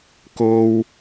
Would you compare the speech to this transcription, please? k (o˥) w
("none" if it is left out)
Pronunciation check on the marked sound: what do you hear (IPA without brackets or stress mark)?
o˥